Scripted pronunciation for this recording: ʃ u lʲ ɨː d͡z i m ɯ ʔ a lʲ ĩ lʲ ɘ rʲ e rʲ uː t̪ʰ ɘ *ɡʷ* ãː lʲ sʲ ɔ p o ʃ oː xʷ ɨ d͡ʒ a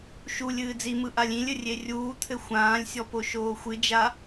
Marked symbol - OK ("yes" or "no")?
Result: no